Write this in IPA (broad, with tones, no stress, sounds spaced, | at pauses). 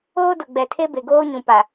oː˦ d ʊ˨ ɡ͡b ɛ˨ tʰ e˦ b e˨ ɡ oː˦ ɲ ũ˨ p a˨